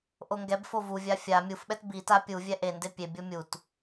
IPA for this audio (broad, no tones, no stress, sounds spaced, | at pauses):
ʔ o ŋ ɡ ɛ b f o v u vʲ a fʲ a mʲ u f ɓ ɛ t b i t a pʲ u vʲ ɛ ʔ e n d e pʲ e bʲ o mʲ u t